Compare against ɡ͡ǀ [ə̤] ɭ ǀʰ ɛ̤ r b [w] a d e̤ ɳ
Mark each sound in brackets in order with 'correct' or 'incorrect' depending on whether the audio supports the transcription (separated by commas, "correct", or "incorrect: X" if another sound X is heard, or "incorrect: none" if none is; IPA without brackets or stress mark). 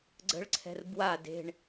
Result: correct, correct